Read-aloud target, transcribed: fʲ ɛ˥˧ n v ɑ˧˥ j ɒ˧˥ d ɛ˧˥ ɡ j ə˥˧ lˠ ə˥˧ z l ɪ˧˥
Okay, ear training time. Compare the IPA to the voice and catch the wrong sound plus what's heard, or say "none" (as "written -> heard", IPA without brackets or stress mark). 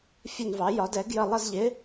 l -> ʎ